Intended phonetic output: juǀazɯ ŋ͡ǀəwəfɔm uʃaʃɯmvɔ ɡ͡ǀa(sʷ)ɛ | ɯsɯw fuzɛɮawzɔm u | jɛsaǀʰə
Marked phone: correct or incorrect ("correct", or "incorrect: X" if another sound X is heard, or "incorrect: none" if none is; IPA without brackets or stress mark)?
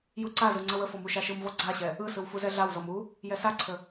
incorrect: ɕ